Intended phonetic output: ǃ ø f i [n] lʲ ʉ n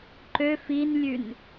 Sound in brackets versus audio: correct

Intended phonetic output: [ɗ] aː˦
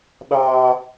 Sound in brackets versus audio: correct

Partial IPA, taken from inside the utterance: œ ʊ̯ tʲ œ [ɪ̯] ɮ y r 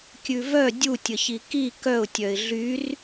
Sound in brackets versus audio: correct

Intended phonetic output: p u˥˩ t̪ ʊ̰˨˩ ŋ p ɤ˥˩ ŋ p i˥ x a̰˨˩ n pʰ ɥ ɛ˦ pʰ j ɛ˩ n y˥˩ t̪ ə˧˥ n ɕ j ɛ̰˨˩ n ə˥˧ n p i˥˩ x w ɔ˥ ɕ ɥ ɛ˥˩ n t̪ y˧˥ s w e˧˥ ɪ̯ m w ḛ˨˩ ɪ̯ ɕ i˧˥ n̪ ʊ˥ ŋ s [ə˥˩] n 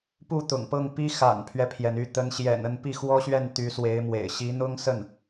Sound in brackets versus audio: correct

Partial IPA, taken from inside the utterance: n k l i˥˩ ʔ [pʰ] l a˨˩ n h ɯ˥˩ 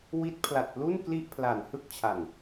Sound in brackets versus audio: correct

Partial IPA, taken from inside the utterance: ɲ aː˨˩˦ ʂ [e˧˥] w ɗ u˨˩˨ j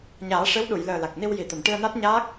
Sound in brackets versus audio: correct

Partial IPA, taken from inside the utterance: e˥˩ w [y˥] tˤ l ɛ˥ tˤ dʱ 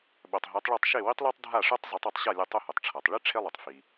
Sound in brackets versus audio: incorrect: i˥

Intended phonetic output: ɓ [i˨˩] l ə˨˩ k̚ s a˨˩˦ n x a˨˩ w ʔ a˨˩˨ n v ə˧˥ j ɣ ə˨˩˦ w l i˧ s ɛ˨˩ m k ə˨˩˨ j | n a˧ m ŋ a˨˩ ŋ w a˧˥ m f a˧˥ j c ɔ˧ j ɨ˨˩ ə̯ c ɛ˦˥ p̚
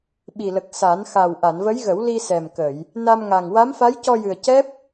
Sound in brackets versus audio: correct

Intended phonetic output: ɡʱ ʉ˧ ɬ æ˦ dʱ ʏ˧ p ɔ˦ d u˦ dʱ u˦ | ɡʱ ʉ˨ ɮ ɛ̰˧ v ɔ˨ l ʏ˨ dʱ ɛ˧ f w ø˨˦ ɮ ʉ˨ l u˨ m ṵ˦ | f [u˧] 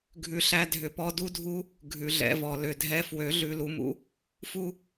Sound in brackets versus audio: correct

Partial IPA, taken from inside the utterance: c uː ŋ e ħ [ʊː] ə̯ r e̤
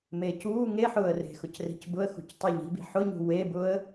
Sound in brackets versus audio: correct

